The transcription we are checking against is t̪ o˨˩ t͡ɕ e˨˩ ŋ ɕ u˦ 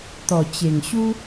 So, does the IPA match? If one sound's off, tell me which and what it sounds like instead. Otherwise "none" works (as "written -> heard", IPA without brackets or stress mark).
o˨˩ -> ɔ˨˩